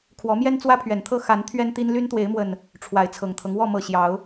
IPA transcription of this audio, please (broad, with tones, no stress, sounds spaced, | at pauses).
kʰ w ɔ˨˦ m j ɛ˦ n t͡s w ä˦ pʰ ɥ ɛ˨˩ n t̪ʰ ɤ˥˨ x a˨˦ n t̪ʰ ɥ ɛ˦ n t̪ i˦ n l y˦ n t̪ w e˨˦ ɪ̯ m w ə˨˩ n | ʈ͡ʂʰ w a˨˦ ɪ̯ t͡sʰ ɤ˨˩ ŋ t̪ʰ ɤ˦ ŋ w ɔ˥˨ m ɤ˨˩ ɕ j ɑ˨˦ ʊ̯